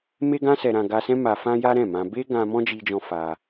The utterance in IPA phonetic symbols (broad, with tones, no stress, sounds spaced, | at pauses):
m e˦ ɡ ã˦ s ɛ˧ ɾ ã˧ ɡ a˧ s ɛ̃˦ m a˧ f ã˦ j a˦ ɾ ɛ̃˦˨ m ã˧ b e˦ ɡ ã˧ m ɔ̃˦ d͡ʒ i˧ d͡ʒ ɔ̃˧ f a˧